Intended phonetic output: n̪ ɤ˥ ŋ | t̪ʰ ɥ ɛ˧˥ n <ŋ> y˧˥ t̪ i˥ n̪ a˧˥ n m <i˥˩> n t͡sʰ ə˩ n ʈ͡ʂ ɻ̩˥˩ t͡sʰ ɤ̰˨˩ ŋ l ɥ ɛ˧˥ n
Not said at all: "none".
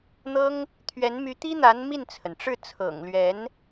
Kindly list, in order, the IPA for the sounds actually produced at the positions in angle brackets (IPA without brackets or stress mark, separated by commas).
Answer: m, i˥˩